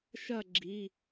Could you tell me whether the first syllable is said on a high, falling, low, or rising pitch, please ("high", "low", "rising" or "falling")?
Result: falling